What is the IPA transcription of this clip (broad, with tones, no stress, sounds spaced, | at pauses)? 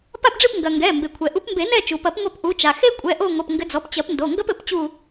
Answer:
p a˦˨ p ɖ͡ʐ ɨ˦˨ p ŋ ɡ ɐ˩ ŋ ɡ ɛ˩˧˩ m b e˩ kʷʰ ɛ˩ ʔ u˨˦ p m b e˨˩˦ n ɛ˦˨ t͡ʃ u˩ p ɐ˨˩˦ p ŋʷ a˦˨ p ʔ u˨˦ t͡ʃ a˩ x e˥ kʷʼ ɛ˩˧˩ ʔ o˦˨ ŋʷ ɐ˩˧˩ p ŋ ɡ ɘ˨˦ d͡z ɔ˩˧˩ p t͡ɕ ɐ˨˩˦ p n d o˩˧˩ ŋ ɡ ɐ˥ p ɘ˨˩˦ p t͡ɕ u˦˨